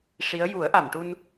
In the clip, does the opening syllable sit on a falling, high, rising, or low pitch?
rising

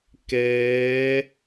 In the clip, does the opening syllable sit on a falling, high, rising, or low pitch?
rising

